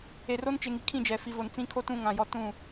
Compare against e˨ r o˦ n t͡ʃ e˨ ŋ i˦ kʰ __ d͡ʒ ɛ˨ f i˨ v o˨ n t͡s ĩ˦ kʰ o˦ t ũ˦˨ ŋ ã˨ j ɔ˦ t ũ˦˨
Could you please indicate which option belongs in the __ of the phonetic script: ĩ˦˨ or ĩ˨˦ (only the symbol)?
ĩ˦˨